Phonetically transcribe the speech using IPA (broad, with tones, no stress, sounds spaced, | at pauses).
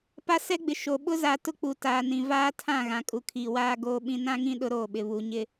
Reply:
p a˦ s ɛ˦ ɡ͡b ɪ˨ ʃ o˨ ɓ ʊ˦ z a˨ t ʊ˦ k͡p u˨ t aː˨ n ĩ˨ v aː˦ tʰ ã˦˨ ɣ ã˨ kʼ u˨ kʰ iː˨ w aː˦ ɡ oː˦ ɓ ĩ˦ n ã˦ ŋ ĩ˦ ɗ ʊ˦ ɾ oː˦˨ ɓ ɪ˨ β u˨ ɲ ɪ˦